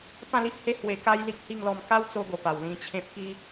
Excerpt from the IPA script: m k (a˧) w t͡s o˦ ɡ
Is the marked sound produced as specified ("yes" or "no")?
no